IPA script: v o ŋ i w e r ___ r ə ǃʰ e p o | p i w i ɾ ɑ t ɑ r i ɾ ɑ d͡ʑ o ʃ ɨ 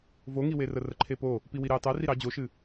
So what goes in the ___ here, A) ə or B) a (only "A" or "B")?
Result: A